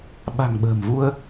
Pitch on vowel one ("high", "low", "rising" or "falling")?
low